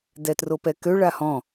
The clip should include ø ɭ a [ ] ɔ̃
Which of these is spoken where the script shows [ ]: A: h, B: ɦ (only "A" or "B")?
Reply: A